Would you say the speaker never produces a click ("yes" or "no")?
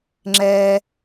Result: no